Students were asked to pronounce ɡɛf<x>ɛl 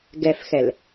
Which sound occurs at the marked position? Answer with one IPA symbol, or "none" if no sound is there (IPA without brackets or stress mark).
x